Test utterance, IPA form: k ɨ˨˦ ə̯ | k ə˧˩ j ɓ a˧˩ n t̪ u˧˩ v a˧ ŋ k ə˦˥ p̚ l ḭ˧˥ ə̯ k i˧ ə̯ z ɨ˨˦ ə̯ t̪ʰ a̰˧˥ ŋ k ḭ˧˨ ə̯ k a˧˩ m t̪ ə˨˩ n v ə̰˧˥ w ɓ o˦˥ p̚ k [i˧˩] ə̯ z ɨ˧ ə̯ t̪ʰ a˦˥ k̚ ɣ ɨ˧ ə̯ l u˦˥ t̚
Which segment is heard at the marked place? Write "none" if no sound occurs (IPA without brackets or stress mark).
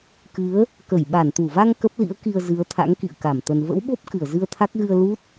ɨ˧˩